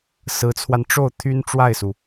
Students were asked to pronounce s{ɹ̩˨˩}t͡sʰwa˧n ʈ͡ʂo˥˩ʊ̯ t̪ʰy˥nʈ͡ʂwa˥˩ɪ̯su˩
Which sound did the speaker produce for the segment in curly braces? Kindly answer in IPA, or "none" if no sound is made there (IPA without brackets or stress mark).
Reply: ɹ̩˧˥